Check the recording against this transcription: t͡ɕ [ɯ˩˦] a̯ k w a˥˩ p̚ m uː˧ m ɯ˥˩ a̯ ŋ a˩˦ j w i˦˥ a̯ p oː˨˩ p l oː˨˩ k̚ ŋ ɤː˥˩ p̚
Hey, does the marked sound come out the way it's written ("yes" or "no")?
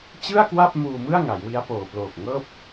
no